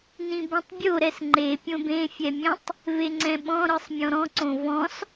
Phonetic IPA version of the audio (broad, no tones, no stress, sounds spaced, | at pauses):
n ĩ b õ tˤ bʲ o ɾ ɛ s ŋ͡ǃ e pʲ õ b ẽ fʲ ɛ mʲ ɛ̃ tˤ | v e ŋ͡ǀ ɛ̃ ɓ ɔ̃ ɾ ɯ sˤ mʲ ɔ̃ ɾ ɔ̃ ǀ õ v ɔ̃ s